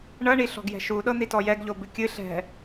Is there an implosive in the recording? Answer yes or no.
yes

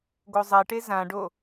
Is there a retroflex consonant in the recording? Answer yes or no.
yes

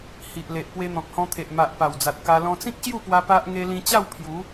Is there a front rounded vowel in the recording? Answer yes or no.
no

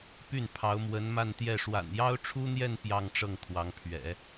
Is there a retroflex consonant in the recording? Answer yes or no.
yes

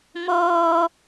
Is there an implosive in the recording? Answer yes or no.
no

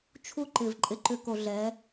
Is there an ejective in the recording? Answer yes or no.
yes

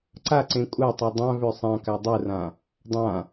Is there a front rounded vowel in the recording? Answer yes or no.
yes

